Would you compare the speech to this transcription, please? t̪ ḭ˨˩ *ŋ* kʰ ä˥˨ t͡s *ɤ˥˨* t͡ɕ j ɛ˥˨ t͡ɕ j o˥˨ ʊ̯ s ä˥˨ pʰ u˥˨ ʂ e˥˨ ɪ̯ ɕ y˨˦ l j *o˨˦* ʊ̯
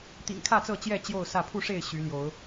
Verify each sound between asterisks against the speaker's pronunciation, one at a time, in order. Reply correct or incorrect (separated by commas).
correct, correct, correct